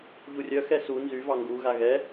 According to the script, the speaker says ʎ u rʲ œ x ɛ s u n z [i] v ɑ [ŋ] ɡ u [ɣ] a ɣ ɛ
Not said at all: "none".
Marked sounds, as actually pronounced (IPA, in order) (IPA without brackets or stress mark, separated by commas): y, ŋ, ɣ